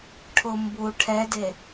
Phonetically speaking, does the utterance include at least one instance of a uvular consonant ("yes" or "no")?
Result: no